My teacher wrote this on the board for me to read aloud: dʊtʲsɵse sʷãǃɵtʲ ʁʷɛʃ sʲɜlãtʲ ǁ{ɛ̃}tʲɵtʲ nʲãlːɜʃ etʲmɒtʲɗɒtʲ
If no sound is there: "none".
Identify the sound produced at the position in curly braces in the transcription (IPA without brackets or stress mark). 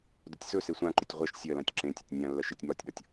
ẽ